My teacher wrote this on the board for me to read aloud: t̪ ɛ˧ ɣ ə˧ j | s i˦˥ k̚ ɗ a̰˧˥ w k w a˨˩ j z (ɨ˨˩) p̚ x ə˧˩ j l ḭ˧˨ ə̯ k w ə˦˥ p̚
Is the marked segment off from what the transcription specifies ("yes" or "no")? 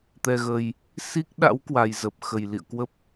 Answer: yes